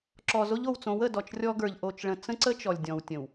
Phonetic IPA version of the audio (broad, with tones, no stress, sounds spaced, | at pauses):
ǁ ɔ˨ z o˦ ʎ o˨ w t͡s õ˨˦ w ə˨ d ɔ˨ t͡ʃ rʲ ɔ˦ ɡ ə˞˨ ʎ ʔ o˨ t͡ʃ ɭ ə̃˨ t͡s ə̃˦ ǀ ə˦ t͡ʃ ɔ˨ lʲ dʲ ɔ̃˨ w tʲ ə̃˨ w